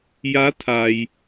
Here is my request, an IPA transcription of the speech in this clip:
ja˧˥t̪ʰa˩j

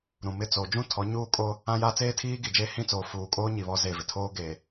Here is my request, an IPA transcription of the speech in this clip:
ɾũ˨ mɪ˦˨t͡so˨ d͡ʒũ˦tʰɔ˨˦ɲuː˦kʼo˦ | ã˦jaː˦ t͡seː˦tʰiː˦ɡi˨d͡ʒeː˦ hĩ˦˨t͡soː˨ fuː˨kʼoː˦ ɲi˨ βɔ˦ze˦˨vɪ˨ tʰoː˦ɡeː˨

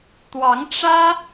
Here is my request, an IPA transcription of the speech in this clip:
t̪wɑ˧˥ŋ ʈ͡ʂä˥

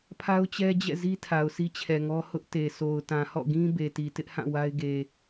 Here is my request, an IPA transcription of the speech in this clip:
pʰa˦ʊ̯t͡ɕɛ˦d͡ʑɛ̰˦˨zi˦ tʰa˨ʊ̯si˦t͡ɕʰɛ˨ŋɔ˦ hʊ˦ʔte˨ so˨ʊ̯tã˨hɔ̰˦˨ɡĩ˦ be˨ti˨ tɪ˦ʔhã˦˨ wa˦ɪ̯ɡe˨

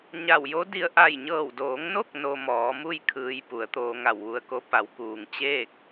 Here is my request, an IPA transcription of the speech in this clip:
ɲa˧˩wjo˧˥di˧ə̯ ʔa˧˩jɲɤː˧˩wdoː˩˧ŋno˥˨k̚ no˧mɔː˩˧mu˥˨j kʰɯː˧j pu˩˧ə̯t̪oː˧ŋa˧˩w ʋu˧ə̯ko˧˥ pa˩˧wkuː˩ŋ t͡ɕeː˥˨k̚

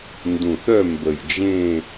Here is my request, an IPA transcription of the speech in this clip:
ndũ˨˩θœ˥˧mbə˨˩jd͡ʒẽ˥˧

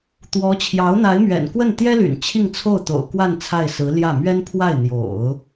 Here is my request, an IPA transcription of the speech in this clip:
t̪wɔ˧˥ t͡ɕʰjɑ˧˥ʊ̯n̪a˧˥ɪ̯mɥɛ̰˨˩nkwə˥˩n t̪jɛ˥ly̰˨˩n t͡ɕʰi˥˧ŋt͡sʰo˥˩ʊ̯t̪o̰˨˩ʊ̯kwa˥˧n t͡sʰa˥˩ɪ̯sɹ̩˧˥ ljä˥˩ mɥɛ˥n pʰwa˥˩ɪ̯n̪jo̰˨˩˦ʊ̯

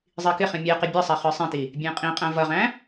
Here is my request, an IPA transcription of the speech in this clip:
zˤikɪχĩ mʲæqɪ bʲʌsˤɛ χə˞sˤĩti | bʲɛ̃qʼĩqʼæ̃ vʌʁæ̃

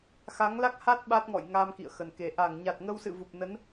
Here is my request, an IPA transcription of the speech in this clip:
xa˨˦ŋla˦˥k̚ha˦˥t̚ ɓa˦˥t̚ŋɔ̰˧˨jŋa˧m kḭ˧˨ə̯xə˨˩nke˨˩ ʔa˧˩ŋɲa˨˩t̚ŋə˧wsɨ̰˧˨ vu˨˩p̚nə˨˦n

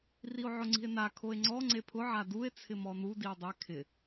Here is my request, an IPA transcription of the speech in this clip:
rio̯ʕʊŋ͡ǀi̤e̯na kʰoe̯ŋ͡ǀɔ ŋ͡ǀepʰʊ ʕadue̯ t͡sʰɪmɔnu die̯dˤɛ kʰɪ

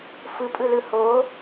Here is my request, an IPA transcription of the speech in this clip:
fɯpʼɯlɯ ho

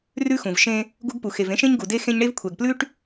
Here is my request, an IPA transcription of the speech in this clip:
rʉ˦xũ˨vʃẽ˦ | ɡu˦ɡpu˨ xe˨vẽ˦ʃẽ˦ɲ ɡu˨de˦ xẽ˦ɲɳe˦v kʷʰɛ˨ɡplʉ˦ʈ

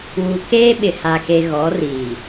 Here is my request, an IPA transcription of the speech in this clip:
wu˨ keː˦ɓɪ˨ha˨ke˨ ɣɔ˨˦riː˨

